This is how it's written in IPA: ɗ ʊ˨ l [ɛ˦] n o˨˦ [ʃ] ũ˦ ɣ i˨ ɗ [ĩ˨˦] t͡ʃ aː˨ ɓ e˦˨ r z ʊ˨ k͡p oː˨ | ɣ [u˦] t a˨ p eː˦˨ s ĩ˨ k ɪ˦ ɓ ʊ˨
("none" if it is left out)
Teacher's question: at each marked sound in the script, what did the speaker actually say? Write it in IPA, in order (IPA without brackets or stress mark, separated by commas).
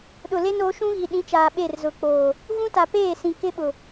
e˦, ʃ, ĩ˨˦, ũ˦